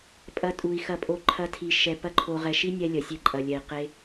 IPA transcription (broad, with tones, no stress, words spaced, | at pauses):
pʼɐ˧tʼu˨i̯xɐ˧pʼo˧ ǃʰɐ˧tʰi˨ ʃɛ˨ pɐ˦ǃʰo˧ ʁɛ˨ʃi˦nʲɛ˧ lʲɐ˨ sʲe˧ǃʼɐ˨lʲɛ˨i̯ qe˧